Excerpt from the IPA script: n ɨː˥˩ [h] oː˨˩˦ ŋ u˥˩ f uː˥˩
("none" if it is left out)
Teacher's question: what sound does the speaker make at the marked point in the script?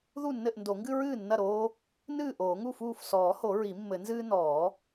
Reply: ʔ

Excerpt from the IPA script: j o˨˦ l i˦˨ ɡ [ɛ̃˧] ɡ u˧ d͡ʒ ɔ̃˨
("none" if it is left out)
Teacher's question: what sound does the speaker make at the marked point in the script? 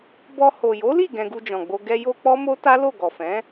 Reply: ɛ̃˧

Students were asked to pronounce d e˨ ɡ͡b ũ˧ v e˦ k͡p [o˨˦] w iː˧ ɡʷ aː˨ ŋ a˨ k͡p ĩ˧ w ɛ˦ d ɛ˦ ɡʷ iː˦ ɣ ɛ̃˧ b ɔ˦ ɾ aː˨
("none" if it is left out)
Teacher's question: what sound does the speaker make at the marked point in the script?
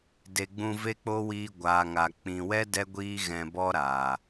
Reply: o˦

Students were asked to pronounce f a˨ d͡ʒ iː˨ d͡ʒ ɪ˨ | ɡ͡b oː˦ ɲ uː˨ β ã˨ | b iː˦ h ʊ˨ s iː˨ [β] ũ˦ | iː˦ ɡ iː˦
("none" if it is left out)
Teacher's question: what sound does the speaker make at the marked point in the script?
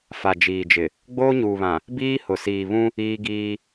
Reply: β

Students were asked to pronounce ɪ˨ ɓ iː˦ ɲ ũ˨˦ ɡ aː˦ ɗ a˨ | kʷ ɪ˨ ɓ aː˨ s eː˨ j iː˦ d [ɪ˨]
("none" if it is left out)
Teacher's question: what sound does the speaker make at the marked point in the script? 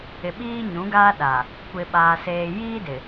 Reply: ɪ˨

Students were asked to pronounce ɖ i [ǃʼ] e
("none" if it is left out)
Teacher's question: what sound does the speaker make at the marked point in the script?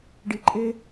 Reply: ǃʼ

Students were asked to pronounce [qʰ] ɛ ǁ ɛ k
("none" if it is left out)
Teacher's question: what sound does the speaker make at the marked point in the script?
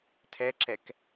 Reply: tʰ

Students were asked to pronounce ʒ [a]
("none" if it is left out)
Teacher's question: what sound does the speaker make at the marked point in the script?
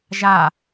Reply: a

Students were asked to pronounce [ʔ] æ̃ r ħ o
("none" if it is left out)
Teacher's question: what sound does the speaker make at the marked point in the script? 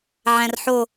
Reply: ʕ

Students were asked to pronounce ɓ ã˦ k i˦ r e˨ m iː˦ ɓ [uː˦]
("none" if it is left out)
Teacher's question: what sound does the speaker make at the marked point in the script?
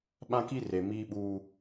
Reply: uː˦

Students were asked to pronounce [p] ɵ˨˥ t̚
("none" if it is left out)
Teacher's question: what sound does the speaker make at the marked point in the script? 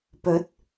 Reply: p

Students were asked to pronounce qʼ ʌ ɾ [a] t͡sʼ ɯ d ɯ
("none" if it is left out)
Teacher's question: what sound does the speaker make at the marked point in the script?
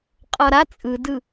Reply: a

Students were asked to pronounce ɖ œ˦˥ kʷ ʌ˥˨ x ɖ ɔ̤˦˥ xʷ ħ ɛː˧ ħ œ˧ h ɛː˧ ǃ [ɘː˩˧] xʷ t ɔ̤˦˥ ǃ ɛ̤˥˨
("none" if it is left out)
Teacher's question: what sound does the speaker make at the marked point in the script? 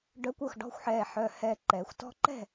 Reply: ɛː˩˧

